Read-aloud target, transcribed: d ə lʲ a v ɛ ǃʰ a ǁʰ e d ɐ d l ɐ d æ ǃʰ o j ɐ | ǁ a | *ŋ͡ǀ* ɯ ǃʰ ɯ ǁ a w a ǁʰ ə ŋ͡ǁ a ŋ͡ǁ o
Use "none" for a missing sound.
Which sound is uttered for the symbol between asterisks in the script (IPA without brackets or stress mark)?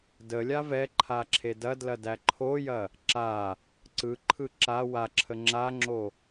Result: ǀ